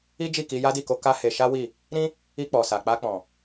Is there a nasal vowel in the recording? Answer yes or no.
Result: yes